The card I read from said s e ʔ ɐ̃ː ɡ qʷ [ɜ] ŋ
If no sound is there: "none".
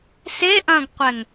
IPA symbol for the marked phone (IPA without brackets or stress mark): ɛ